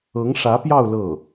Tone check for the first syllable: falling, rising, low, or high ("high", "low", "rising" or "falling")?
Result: rising